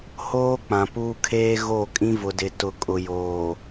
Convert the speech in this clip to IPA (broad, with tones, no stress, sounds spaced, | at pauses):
h oː˦ k͡p ã˨ p uː˦ kʰ eː˦ ɣ o˦˨ kʼ ĩ˦ v ʊ˨ d ɪ˨ t ʊ˨ kʼ ʊ˨ j oː˨